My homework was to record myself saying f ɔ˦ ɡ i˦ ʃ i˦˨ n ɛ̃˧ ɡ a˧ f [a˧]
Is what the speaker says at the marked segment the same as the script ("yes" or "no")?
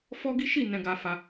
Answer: yes